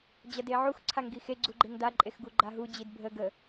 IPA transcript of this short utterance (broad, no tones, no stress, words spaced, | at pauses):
d͡ʑɐdeʕux ǀʰaŋɡixe ɡ͡ǀuɡ͡ǃeŋda ǃʼexɡuɡ͡ǃaɦu d͡ʑidbʱə ɡə